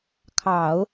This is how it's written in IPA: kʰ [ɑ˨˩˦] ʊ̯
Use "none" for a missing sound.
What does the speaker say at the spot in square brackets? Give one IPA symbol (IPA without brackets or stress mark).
ɑ˨˩˦